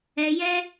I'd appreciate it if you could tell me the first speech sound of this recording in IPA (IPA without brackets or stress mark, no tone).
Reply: ɛ